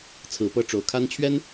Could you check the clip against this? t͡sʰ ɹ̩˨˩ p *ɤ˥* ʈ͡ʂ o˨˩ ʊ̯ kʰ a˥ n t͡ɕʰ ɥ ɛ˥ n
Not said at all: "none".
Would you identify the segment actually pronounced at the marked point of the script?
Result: ɤ˥˩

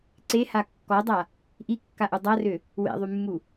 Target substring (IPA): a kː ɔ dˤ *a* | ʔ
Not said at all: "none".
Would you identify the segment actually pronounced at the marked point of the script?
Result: a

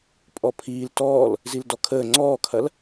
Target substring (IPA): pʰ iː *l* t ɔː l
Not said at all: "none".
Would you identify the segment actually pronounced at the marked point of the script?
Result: l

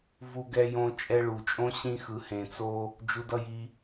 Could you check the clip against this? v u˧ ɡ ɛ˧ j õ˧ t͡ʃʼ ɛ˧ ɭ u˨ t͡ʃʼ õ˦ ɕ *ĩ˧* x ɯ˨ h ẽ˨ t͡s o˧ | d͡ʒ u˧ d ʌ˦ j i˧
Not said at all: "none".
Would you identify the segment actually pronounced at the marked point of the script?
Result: ĩ˧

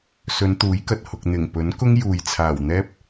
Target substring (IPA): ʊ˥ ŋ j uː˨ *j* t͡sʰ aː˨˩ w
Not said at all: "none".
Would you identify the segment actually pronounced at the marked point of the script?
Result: j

